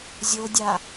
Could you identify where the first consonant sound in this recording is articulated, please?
alveolar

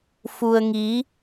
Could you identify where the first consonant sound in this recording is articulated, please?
labial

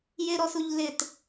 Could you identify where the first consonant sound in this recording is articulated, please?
palatal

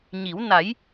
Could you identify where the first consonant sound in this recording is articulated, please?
palatal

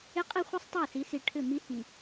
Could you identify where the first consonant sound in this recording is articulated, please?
uvular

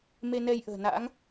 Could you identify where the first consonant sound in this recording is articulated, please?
labial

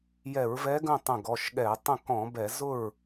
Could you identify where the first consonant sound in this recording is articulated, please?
palatal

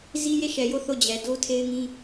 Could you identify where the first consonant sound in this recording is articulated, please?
alveolar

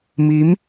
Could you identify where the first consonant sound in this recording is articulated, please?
labial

